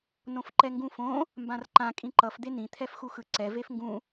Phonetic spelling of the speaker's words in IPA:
n õ f ǃ ɛ ŋ ɡ ũ f õ | m b ã r ǃ ã kʼ ĩ ǃ ʌ f d̪ e n ĩ t̪ʰ ɛ f x u x ɯ ǀ ɛ v e f ŋ ɡ ũ

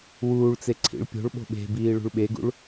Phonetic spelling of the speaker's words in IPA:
w uː ɭ t͡s e ǀʰ ḭ ɭ pʲ o̤ ɭ ɓ o̤ ɓ e̤ b iː ɭ ṳ ɭ ɓ e ɡ ṵ ɭ

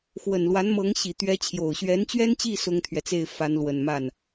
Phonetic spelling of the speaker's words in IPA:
x w ə˨˩ n l w a˧˥ n m ɤ˧˥ ŋ ɕ i˨˩ t̪ ɥ ɛ˧˥ t͡ɕʰ j o˨˩ ʊ̯ ɕ ɥ ɛ˧˥ n t͡ɕ ɥ ɛ˥ n t͡ɕ i˥˩ s ʊ˥ ŋ t̪ʰ ɥ ɛ˨ t͡s e˥˩ ɪ̯ f a˧˥ n l w ə˨˩ n m a˥˩ n

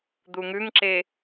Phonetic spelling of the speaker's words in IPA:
d̪ u ŋ ʉ ŋ ǁ e

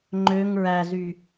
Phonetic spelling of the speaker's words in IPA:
ŋ͡ǃ ø ŋ ɹ æ z y

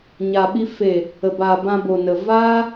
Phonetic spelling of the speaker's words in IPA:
ɲ a˨ ɓ i˧ f e˨ | ə˨ b aː˨ b ã˧ b o˨ n ə˨ v aː˦

